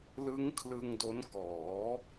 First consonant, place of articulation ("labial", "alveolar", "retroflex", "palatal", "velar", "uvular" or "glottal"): alveolar